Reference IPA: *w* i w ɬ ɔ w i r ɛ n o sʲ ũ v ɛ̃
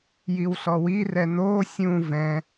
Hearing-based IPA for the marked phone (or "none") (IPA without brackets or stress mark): j